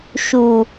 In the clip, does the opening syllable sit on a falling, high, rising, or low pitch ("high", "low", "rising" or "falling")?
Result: low